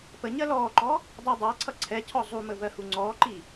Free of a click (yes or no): no